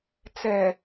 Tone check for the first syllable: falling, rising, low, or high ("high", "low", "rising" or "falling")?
low